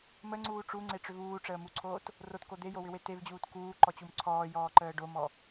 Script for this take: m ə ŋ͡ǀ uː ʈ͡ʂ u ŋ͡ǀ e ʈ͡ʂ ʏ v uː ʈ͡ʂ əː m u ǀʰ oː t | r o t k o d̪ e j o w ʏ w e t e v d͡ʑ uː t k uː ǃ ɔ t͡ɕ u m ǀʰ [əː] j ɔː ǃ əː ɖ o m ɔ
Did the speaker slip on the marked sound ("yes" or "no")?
yes